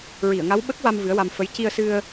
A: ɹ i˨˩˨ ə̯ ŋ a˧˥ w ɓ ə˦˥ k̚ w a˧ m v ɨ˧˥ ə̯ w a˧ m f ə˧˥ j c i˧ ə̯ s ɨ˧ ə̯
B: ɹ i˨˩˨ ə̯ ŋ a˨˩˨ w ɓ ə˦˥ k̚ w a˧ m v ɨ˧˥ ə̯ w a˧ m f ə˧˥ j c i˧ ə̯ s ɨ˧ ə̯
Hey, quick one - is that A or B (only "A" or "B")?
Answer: A